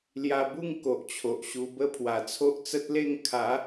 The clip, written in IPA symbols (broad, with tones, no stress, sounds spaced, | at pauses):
l j a˧ b u˥˧ ŋ k o˨ ʔ t͡ɕʰ o˨ ʔ ɕ u˧ b ə˦ pʰ w a˨˩ t͡sʰ o˦ ʔ t͡s ə˦ t̚ l e˥˧ ŋ kʰ a˨˦